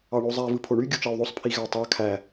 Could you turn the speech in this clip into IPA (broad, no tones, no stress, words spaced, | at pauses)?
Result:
ɑɳozˤæ vɯpʰoɳy ɡʲut͡ʃɑu̯ðˤosˤ pʰiɣætˤɑ kʰæ